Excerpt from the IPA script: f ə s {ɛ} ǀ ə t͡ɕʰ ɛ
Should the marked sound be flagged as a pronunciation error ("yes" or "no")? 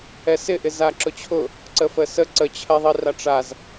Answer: yes